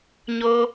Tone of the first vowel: high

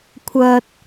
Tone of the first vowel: low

